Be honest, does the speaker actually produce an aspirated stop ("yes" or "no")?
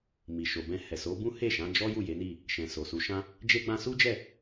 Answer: no